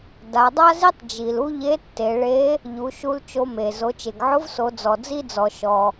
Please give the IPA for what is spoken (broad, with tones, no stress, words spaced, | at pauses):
da˩˧dˤa˥zi˥tˤ d͡ʒi˩lu˥ ʎe˧˥tːe˩˧ɭe˧˥ | ʎu˩˧ʃu˧l t͡ʃo˧me˩ zo˩˧t͡ʃe˩ɡʕʊ˧˥vso˩˧ d͡zɔ˩d͡zi˥d͡zɔ˩ ʃɔ˩